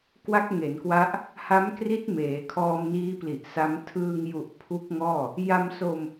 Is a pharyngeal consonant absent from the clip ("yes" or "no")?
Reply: yes